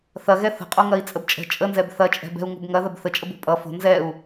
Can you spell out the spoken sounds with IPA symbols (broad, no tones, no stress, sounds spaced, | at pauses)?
θ ɐ ɣ ɛ θ ə̤ qʼ o ŋ ɐ i̯ t͡sʼ ə b t͡ʃʼ ə̤ t͡ʃʼ ə n z ɛ b θ ɐ t͡ʃʼ ɛ̤ b ɛ̤ u̯ ŋ o̤ b ŋ ɐ ð ɐ b θ ə t͡ʃʼ ə b o̤ pʼ ʌ f o̤ n z ɛ u̯